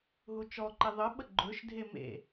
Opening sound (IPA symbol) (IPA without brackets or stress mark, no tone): ɦ